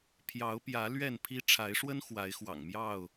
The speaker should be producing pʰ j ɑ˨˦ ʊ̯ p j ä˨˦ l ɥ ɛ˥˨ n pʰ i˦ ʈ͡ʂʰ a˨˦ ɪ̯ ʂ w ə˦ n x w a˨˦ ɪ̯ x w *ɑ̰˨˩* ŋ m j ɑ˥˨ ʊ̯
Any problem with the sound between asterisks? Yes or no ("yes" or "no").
no